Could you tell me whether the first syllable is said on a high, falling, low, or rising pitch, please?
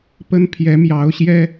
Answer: high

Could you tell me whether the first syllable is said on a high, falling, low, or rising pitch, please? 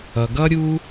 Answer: low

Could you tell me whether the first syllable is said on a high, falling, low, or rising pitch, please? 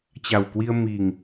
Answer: low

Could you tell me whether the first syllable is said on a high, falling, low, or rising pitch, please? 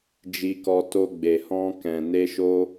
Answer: high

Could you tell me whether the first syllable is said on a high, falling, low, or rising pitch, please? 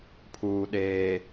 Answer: low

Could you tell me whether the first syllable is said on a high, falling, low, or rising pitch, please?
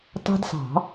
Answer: high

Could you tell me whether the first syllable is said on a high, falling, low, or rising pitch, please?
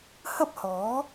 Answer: high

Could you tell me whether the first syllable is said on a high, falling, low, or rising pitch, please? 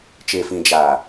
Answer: low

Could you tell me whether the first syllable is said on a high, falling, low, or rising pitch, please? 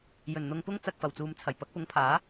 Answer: low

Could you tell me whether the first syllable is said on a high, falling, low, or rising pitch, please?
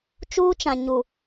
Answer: high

